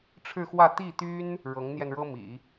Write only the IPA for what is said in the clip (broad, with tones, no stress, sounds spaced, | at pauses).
ʈ͡ʂʰ ɻ̩˥˧ x w ä˥˧ t̪ i˥˩ t̪ y˥ n | ɻ ɤ˧˥ ŋ n̪ j ɛ˧ n ɻ ɤ˥ m ḭ˨˩˦